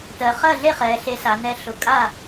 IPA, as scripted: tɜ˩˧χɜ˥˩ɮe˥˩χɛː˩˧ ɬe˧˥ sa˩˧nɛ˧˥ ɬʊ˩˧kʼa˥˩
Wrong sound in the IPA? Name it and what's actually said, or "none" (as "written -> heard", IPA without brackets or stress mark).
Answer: none